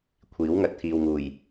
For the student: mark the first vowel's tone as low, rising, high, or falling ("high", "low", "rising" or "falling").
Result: rising